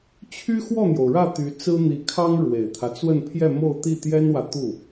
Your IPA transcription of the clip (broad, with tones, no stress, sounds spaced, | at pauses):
t͡ɕʰ y˥ x w ɔ˥˩ n̪ j o˩ ʊ̯ ɻ ä˥˩ t̪ y˧˥ t͡s ɹ̩˥ n̪ i˧˥ kʰ ɑ˥ ŋ ɻ w e˨˩ ɪ̯ t̪ʰ ä˦ t͡s w ə˥˧ n pʰ j ɛ˥˧ m o˥˧ ʊ̯ t̪ i˥˩ t̪ j ɛ˥ n w ä˨ t̪ u˥˩